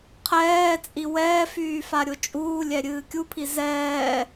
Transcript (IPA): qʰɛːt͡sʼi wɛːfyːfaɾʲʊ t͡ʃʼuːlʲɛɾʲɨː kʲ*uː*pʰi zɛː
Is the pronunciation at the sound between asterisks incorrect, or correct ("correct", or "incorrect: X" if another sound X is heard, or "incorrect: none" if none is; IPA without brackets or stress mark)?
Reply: incorrect: u